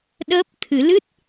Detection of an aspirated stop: present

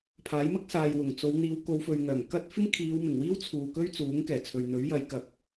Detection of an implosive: absent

